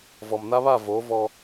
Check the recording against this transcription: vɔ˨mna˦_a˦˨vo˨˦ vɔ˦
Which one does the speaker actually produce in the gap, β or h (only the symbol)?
β